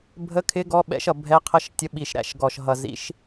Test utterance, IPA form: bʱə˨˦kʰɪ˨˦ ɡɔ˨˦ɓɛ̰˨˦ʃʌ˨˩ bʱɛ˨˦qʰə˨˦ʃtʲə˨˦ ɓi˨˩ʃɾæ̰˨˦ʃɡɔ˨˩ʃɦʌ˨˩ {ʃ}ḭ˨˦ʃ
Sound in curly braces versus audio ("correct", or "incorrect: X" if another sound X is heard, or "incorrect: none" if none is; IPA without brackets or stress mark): incorrect: z